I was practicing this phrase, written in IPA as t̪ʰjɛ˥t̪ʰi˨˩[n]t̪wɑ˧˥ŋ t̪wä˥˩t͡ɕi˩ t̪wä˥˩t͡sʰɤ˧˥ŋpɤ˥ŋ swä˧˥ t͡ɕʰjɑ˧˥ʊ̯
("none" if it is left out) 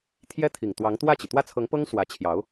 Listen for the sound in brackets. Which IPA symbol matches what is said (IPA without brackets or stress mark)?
ŋ